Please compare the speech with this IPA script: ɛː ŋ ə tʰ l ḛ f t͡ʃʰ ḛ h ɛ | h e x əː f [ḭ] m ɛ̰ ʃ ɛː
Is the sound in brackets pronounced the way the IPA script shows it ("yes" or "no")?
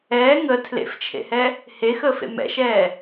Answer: no